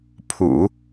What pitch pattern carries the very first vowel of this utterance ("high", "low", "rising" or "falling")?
low